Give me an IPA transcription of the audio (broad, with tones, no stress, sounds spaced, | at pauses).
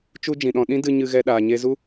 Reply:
t͡ʃ u˦ d͡ʒ ĩ˨ ɗ ɔ̃˧ ɗ ĩ˦ d ɨ˧ ɲ ɨ˧ ɣ ɛ˧ ɗ aː˨ ɲ e˧ z u˦